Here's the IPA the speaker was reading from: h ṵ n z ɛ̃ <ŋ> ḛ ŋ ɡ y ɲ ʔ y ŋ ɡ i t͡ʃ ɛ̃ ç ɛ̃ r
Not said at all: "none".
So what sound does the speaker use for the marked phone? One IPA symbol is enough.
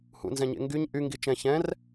ɲ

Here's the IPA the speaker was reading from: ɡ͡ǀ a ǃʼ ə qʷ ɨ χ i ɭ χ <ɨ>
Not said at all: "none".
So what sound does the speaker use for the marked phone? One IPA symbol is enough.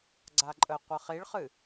ɨ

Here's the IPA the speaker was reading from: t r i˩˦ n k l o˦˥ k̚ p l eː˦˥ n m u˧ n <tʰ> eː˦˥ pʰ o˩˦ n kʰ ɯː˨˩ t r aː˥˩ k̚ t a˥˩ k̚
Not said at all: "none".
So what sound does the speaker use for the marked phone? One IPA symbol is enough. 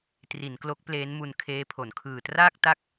kʰ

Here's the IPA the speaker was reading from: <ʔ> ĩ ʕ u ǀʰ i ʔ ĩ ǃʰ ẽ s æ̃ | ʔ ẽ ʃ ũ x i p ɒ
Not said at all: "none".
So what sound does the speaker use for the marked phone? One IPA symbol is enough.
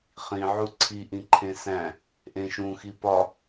χ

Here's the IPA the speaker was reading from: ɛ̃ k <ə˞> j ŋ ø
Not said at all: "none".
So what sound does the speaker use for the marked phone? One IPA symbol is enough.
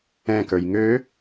ə˞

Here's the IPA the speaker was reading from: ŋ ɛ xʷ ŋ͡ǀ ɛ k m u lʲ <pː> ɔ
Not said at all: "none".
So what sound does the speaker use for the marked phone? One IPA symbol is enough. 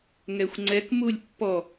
pː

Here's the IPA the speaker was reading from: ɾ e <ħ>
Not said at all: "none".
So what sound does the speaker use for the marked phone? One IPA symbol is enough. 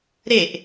ʔ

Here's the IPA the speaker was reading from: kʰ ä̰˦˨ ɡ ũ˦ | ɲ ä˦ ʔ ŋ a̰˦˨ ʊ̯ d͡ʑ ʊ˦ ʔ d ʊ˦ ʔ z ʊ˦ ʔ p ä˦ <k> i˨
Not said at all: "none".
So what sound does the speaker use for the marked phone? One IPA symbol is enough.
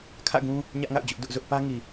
ŋ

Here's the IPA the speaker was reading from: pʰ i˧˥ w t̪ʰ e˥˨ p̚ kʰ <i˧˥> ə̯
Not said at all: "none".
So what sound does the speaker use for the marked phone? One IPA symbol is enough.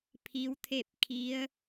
i˧˥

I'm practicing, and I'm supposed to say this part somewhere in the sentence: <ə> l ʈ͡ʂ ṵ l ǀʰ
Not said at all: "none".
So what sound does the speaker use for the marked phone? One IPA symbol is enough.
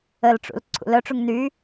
ə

